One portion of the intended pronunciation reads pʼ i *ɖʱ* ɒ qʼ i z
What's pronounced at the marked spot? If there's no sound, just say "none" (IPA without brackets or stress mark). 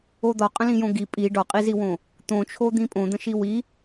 ɖ